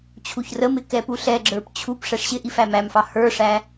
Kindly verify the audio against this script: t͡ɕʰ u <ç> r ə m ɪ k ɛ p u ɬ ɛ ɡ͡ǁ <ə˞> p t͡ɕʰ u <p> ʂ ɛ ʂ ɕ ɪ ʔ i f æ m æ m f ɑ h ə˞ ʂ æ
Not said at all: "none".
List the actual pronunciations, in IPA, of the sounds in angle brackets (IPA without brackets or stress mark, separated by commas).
ç, ə˞, p